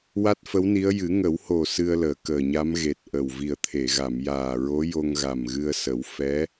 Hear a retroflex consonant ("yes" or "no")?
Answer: no